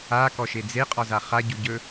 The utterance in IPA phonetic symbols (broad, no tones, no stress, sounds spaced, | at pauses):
a k ɔ ʃ e d͡z e qʼ ɒ z a χ a ɟ u ɟ ɵ